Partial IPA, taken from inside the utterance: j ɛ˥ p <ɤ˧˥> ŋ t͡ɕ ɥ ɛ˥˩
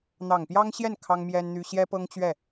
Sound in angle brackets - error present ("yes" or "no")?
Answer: yes